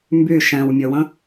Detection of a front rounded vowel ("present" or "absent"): present